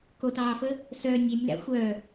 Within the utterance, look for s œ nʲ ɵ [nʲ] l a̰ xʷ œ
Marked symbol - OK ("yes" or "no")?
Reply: yes